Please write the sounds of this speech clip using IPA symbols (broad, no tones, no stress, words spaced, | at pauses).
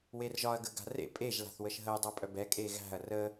werʒɒɐ̯ ɡəɡa̤rḛ pʼeʒ la̤θwəʃɦəj dˤæpʼœbɛ kʼeɣæ̤ɐ̯ rə